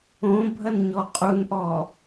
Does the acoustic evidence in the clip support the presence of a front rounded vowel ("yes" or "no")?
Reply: no